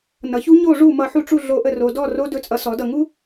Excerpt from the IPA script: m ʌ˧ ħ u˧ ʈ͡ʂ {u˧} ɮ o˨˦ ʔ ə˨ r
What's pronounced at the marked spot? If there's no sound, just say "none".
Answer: u˧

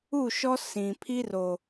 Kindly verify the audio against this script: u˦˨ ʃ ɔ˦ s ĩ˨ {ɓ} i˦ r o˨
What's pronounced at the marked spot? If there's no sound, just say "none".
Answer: pʰ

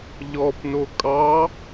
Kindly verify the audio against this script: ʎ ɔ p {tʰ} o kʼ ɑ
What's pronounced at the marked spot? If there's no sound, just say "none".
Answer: n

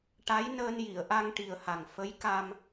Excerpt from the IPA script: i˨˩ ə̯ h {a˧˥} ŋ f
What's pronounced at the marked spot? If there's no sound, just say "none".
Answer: a˨˩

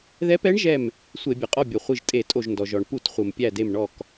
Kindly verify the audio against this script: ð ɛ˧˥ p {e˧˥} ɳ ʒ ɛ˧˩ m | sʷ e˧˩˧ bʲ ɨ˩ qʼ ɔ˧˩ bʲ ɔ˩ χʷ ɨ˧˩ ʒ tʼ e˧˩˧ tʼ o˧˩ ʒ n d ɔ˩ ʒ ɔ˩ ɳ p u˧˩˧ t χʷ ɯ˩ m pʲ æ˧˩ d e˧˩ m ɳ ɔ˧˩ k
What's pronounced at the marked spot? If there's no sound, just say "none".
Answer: ɛ˧˥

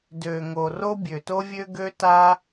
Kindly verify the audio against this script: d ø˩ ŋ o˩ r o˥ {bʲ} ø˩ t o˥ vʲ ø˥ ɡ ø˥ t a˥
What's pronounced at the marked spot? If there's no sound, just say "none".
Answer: bʲ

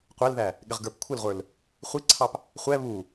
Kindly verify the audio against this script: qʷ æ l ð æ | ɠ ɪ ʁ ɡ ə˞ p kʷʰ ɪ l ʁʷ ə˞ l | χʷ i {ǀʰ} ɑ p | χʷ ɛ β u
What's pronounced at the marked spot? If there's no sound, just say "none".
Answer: ǀʰ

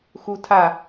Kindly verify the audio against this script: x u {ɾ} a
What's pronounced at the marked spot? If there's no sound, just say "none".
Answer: tʰ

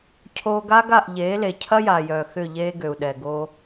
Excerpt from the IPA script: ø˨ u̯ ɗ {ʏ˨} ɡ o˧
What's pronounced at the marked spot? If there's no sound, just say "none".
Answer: ɛ˨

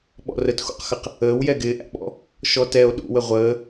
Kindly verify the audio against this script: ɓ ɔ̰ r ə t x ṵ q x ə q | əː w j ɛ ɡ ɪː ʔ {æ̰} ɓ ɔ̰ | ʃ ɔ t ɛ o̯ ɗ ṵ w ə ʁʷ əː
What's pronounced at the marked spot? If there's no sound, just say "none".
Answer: æ̰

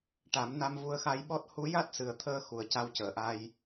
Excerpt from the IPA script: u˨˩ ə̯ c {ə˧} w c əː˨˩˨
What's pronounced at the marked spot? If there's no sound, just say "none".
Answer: a˧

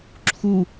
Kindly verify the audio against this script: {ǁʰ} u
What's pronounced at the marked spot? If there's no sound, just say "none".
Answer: ǁʰ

